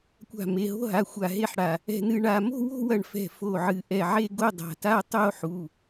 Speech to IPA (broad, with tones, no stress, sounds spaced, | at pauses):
kʷ a̤˧˩ m e˩˧˩ ɦ o̤˥˧ ɦ a˩˧˩ xʷ a˧˩ ɦ e˥˧ ħ ɽ a˧˩ | ɛ̤˥˧ n ɨ˥˧ ɳ a˥˧ m o̤˥˧ w o̤˥˧ w ɐ˧˩ ɳ f ɛ̤˧˩ f o˧˩ ʕ ɨ˧˩ ʔ ɛ˧˩ ʕ e˥˧ ɡ o˥˧ dˤ a̤˩˧˩ t a˥˧ tˤ o˥˧ ħ u˩˧˩